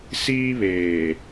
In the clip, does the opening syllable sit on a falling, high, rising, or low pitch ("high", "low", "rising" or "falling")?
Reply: high